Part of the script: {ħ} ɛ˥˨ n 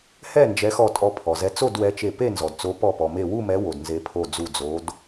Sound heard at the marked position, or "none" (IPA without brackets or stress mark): h